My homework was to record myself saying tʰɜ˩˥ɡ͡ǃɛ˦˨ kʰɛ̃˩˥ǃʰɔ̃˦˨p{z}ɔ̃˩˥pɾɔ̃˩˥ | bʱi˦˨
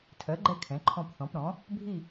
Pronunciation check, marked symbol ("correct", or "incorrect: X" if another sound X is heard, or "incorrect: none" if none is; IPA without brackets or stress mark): incorrect: θ